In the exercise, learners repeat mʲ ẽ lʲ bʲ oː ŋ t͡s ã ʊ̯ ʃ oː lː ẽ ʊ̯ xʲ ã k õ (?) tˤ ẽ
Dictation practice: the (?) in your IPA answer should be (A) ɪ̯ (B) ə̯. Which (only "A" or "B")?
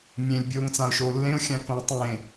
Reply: B